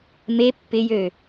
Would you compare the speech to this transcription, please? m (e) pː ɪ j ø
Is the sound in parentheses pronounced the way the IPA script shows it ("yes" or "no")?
yes